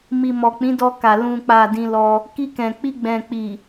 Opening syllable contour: low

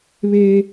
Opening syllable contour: high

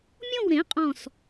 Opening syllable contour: falling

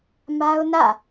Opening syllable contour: high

